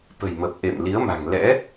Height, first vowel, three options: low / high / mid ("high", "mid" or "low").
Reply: mid